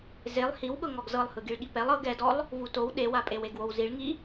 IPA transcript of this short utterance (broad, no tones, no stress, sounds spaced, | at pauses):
z e lˠ h i w ɠ ɤ ŋ ɔ ɡ z ɤ lˠ h ɯ ɡ i ɭ ɠ i p ɛ lˠ ɤ ɡ ɛ d ɔ lˠ | v u t o w ɗ e w a pʼ e w e ɡ w o w z i ɭ ŋ i